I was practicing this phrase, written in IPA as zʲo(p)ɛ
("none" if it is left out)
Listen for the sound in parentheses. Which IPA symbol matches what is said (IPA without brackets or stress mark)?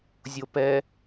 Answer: p